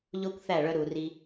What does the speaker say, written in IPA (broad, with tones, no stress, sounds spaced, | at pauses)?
ʎ o˦ kʷ θ æ˦˨ ɭ œ˧ ɾ u˨ r i˧